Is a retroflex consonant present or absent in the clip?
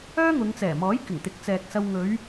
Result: absent